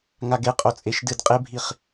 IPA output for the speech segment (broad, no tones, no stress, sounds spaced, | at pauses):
ŋ a ɡ e qʼ o t͡sʼ e ʃ d ɨ d qʼ e bʱ i χ